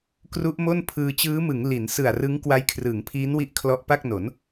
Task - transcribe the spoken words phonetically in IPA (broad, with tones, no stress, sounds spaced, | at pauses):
k r u˦˥ ʔ m o˥˩ n pʰ ɯː˧ t͡ɕ ɯː˦˥ m ɯ˩˦ ŋ l i˩˦ n s ɯ˨˩ a̯ r ɯ˦˥ ŋ k w a˦˥ j kʰ r ɯː˩˦ ŋ pʰ iː˦˥ n w i˦˥ ʔ kʰ l ɔ˦˥ ʔ p a˥˩ k̚ n o˩˦ n